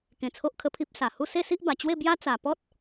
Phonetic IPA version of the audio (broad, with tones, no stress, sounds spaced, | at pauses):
k ẽ˧ t͡sʰ o˦ ʔ kʰ ə˦ pʰ i˦ p̚ s a˨˩ h u˥˧ s e˥˧ s i˦ ʔ b a˨˩ t͡ɕ w e˥˧ b j a˦ t͡s a˨˩ p ɔ˦ t̚